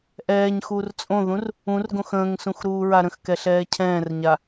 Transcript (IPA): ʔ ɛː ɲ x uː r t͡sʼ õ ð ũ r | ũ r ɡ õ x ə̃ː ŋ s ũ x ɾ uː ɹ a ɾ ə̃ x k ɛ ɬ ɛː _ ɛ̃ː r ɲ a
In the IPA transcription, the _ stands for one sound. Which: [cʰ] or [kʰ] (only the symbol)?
cʰ